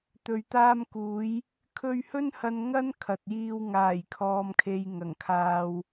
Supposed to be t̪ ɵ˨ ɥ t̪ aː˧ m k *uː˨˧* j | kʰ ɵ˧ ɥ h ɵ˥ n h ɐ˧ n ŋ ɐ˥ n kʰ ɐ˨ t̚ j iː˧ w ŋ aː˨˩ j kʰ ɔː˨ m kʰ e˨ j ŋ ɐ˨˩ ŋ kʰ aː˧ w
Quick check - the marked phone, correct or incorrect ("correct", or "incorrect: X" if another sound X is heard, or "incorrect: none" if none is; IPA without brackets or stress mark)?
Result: correct